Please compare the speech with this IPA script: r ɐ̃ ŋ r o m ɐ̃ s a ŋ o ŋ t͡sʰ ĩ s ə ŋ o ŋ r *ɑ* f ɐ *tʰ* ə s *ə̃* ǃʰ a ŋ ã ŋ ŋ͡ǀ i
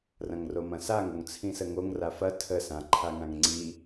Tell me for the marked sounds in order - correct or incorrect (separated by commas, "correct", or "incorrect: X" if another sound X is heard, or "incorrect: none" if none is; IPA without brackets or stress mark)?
incorrect: a, correct, incorrect: ã